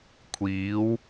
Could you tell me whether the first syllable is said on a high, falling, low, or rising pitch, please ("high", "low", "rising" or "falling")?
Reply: rising